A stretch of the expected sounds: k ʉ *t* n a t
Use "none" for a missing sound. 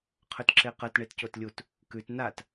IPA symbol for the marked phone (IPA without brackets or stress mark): t